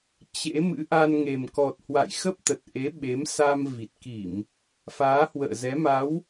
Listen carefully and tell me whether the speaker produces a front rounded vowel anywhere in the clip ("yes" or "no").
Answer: no